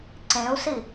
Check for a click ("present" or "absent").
present